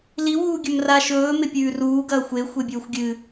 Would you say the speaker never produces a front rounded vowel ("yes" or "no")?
yes